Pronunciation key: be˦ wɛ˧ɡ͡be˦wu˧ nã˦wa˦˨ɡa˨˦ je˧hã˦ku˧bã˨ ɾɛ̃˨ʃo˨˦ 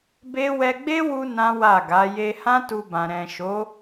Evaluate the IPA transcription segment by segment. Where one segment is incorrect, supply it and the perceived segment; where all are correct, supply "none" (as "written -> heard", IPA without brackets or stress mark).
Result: k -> t